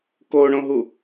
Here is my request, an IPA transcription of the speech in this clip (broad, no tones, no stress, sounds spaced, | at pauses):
k o ɳ õ ɦ u